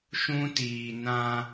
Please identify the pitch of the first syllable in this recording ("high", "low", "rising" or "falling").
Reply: high